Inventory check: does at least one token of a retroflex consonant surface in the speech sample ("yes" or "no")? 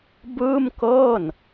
no